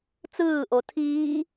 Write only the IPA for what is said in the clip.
t͡s ɯː ʔ o tʰ iː

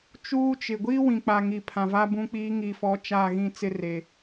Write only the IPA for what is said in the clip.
t͡ʃ uː˦ t͡ʃ ɪ˨ ɡʷ iː˦ w ĩ˨ k͡p a˨ ŋ i˨ pʰ ã˨ v a˦ b ũ˦ k͡p iː˦ ŋ i˨ f ɔ˨˦ t͡ʃ a˦˨ ɣ ĩ˦˨ t͡s ɪ˦ r e˨

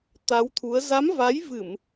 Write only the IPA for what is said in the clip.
t̪ a˨˦ w t̪ʰ u˨˦ ə̯ z a˨˦ m v a˨˦ j v ɨ˧˩˨ m

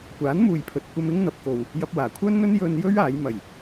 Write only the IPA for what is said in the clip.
kʷ aː˨˥ n m uː˨ j pʰ ɵ˨ t̚ kʷ ɐ˧ m ɪ˥ ŋ n̪ ɐ˨ p̚ k o˨ w | j ɐ˧ p̚ w aː˨˩ kʷʰ œː˥ n n̪ ɵ˥ n j ɵ˧ n j ɵ˥ ɥ aː˨˥ j m ɐ˨˩ j

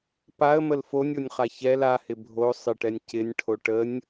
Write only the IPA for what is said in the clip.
p a ə̯ m ə l f o nʲ o nʲ χ a ç ɛ l a h ɪ bʱ o sˤ ɪ ʈ ɛ nʲ c ɪ nʲ ʈʰ o ʈ ə nʲ

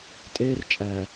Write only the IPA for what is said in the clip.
tʼ eː˦ r t͡ʃʼ æː˨

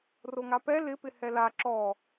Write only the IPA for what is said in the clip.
r o ŋ a p ɛ l ɪ p ɪ h ɛ l a ǁ ɔ

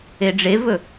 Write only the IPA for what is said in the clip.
e ɖ͡ʐ e v ɵ

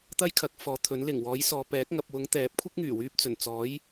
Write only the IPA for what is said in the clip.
t̪ ɐ˥ j kʰ ɐ˨˥ k̚ f ɔː˨˥ t̪ʰ ɵ˨˥ n l ɪ˨˩ ŋ w ɔː˨˥ j s ɔː˨ p ɛː˨˥ k̚ ŋ ɐ˨ p̚ w ʊ˨˥ ŋ t̪ ɛː˨˥ p̚ kʷʰ ɪ˥ k̚ ŋ yː˨˩ w yː˧ p̚ t͡s ɵ˨˩ n t͡s ɔː˨˥ j

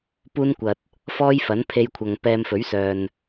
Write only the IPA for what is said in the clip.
p uː˥ n kʷ ɐ˨ t̚ | f ɔː˥ j f ɐ˨˥ n pʰ e˧ j kʷʰ ɐ˨ ŋ p ɛː˧ m f ɵ˨˥ ɥ s œː˨ n

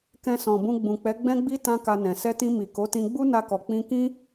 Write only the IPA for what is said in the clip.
k ɛ̃˧ s ɔ̃˨ b ũ˧ ɡ͡b ũ˨ k͡p ɛ˨˦ ɡ͡b ɛ̃˦ ɡ͡b i˦ t ã˦ k a˧ n ɛ̃˨ s ɛ˧ t ĩ˧ m i˨ k o˨˦ t ĩ˧ ɡ͡b u˦ n a˧ k ɔ˨ k͡p ĩ˧ k ĩ˦

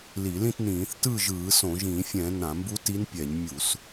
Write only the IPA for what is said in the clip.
l i˧˩˧ l ĩ˥˨ t n ĩː˧˩˧ θ t ɯː˥˨ ʒ ɯː˧˩˧ s õ˧˩˧ ʒ ĩː˧˩˧ fʲ ɛ̃˧˩˧ n ã˧˩˧ m b u˧˥ t i˧˥ n pʲ ɛ˧˩˧ ɲ mʲ u˧˩˧ s

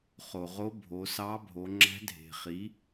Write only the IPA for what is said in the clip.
χ o˩ ʁ o˧˥ bʱ o˩˧ s ɑ˧˥ bʱ o˩˧ ŋ͡ǁ æ̤˧˥ dʱ e̤˩ χ i˩˧

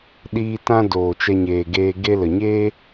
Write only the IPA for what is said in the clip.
ɗ iː˧ t ã˧ d oː˨ t͡ʃ ɛ˧ ɲ eː˨ ɡ eː˧ ɡ e˧ l ə˨ ɲ eː˦

